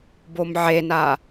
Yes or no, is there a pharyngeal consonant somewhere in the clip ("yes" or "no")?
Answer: yes